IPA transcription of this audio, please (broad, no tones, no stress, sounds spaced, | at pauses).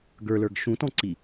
ɡ ə˞ l ə˞ ɡ ʃ ũ t ɔ̃ ǀ i